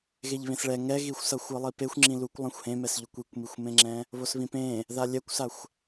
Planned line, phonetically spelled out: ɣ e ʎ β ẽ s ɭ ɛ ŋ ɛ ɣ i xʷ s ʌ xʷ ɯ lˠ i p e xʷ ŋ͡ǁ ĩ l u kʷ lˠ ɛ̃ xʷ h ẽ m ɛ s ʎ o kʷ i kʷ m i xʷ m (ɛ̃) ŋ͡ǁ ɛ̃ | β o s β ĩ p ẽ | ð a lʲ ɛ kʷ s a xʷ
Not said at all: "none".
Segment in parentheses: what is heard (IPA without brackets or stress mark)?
ẽ